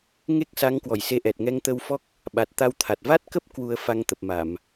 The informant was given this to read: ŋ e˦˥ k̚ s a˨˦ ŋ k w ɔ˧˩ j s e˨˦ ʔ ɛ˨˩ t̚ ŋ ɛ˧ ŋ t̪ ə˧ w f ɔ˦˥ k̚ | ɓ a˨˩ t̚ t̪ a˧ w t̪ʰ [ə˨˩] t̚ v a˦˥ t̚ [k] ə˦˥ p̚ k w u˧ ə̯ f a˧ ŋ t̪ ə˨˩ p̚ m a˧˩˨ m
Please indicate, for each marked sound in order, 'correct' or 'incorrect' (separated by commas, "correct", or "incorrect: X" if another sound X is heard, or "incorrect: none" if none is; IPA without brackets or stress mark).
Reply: incorrect: a˨˩, correct